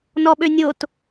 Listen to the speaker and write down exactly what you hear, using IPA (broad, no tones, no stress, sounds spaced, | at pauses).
n ɔ ɓ ø nʲ o t